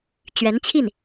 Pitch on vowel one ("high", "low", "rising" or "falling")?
rising